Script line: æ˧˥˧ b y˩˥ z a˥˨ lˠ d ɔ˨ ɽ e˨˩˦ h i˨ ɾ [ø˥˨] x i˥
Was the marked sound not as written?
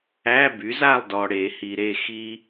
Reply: yes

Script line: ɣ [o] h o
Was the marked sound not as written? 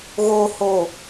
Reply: no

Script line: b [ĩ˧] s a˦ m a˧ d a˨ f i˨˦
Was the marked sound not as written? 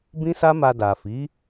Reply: yes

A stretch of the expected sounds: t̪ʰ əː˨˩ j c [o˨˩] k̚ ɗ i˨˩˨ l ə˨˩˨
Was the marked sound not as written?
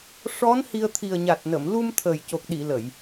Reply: no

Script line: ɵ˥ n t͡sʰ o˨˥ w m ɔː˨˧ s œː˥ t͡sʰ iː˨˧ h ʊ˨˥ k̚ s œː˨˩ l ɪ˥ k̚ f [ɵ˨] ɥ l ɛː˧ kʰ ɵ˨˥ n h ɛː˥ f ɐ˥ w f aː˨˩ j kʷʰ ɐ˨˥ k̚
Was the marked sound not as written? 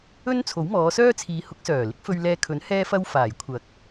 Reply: yes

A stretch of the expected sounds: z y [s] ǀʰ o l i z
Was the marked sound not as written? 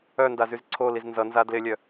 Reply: yes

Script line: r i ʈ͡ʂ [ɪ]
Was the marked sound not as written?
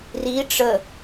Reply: yes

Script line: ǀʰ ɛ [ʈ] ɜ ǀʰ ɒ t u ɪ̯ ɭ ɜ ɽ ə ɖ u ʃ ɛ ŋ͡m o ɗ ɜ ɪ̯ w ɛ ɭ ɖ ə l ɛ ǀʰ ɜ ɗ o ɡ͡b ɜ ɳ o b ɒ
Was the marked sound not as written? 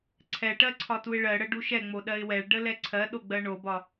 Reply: no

